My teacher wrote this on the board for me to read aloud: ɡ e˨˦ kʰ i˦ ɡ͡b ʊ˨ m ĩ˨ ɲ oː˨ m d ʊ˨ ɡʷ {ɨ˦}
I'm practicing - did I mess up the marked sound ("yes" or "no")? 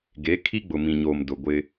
yes